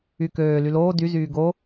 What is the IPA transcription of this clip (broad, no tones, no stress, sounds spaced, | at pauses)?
y k øː l y l oː d y z yː ɡ o